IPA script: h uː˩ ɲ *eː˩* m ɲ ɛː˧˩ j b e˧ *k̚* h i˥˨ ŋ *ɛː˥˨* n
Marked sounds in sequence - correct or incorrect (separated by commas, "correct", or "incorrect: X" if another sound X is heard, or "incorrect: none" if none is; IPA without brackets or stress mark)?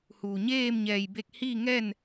incorrect: eː˥˨, correct, correct